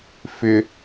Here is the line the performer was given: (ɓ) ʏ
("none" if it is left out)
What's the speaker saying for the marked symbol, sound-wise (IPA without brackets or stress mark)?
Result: f